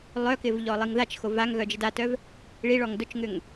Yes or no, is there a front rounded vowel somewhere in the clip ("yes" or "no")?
yes